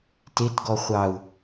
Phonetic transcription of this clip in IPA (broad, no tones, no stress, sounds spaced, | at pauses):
t e t ɡ ɔ χʷ ɑ u̯